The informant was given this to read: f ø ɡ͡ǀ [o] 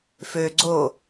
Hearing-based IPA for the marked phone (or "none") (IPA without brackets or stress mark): o